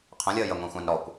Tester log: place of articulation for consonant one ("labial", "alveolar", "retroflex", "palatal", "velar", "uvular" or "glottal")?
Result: uvular